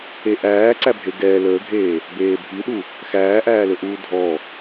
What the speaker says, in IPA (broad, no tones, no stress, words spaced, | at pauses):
eʔæː ǀæbʱeɡɛː ləːɡʱeː | beːbʱiɗu | xæːʔæːlɵʔuː dʱɔ